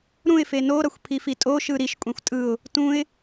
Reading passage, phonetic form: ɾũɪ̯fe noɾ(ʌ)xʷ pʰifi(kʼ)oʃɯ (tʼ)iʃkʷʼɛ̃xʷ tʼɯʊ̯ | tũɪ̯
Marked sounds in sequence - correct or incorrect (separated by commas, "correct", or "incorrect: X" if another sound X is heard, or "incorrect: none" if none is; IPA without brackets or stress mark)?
correct, incorrect: tʼ, incorrect: ɾ